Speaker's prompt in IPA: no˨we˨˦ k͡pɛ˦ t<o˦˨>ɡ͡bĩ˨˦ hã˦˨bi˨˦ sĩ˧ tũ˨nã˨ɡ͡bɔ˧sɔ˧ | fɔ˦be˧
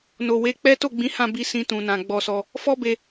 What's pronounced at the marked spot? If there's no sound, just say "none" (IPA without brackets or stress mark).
o˦˨